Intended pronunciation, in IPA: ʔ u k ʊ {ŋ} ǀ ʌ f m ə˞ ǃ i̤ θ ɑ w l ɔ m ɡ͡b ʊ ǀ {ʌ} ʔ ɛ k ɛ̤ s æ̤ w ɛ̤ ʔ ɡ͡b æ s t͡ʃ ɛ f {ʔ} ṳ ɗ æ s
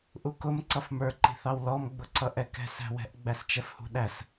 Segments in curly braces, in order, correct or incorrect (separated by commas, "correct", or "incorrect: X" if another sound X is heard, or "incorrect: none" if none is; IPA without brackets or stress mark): incorrect: m, correct, incorrect: h